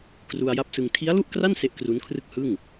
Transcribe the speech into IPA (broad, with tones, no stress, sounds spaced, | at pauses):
k r u˧ a̯ j a˦˥ p̚ s ɯ˧ ŋ tʰ i˦˥ a̯ l u˥˩ ʔ k r a˥˩ n s e˦˥ ʔ k r u˦˥ n kʰ r ɯ˥˩ k̚ h ɯ˥˩ ŋ